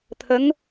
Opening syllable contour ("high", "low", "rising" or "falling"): rising